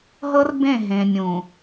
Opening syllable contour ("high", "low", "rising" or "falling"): high